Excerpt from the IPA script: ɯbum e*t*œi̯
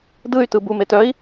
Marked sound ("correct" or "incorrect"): correct